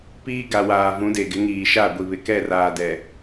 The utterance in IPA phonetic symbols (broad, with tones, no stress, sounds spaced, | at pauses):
p iː˦ ɡ a˨ w aː˨ v ũ˨˦ d e˨ ɡ ɪ˨˦ ŋ iː˨ ʃ a˦˨ ɡʷ i˨ β ɪ˨ k ɛ˦˨ r aː˨ d ɛ˨